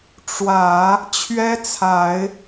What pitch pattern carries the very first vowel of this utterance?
low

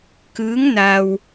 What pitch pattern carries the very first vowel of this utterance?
rising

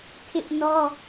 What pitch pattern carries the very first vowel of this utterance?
high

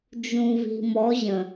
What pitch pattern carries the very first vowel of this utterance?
low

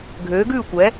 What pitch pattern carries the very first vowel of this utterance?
rising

